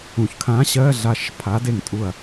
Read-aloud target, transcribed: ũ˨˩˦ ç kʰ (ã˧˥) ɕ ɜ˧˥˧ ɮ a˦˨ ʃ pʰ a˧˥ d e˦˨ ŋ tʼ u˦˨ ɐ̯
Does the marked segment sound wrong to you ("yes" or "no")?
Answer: no